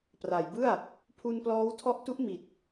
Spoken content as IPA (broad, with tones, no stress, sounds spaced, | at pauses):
p r a˩˦ j b ɯ˥˩ a̯ | pʰ u˧ n p l ɔː˦˥ w tʰ ɔ˦˥ ʔ t u˦˥ ʔ m i˨˩ t̚